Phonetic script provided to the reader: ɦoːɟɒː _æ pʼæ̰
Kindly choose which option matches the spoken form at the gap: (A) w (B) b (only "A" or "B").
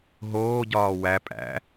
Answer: A